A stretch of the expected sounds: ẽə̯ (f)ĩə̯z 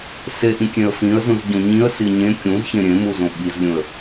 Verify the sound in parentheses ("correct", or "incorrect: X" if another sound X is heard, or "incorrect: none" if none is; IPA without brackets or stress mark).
correct